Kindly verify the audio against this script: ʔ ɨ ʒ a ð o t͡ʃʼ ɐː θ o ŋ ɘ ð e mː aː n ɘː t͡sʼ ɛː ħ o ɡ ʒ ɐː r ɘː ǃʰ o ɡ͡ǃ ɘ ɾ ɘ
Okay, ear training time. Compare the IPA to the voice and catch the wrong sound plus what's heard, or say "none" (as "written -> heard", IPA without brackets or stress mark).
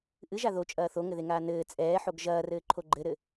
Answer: mː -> ŋ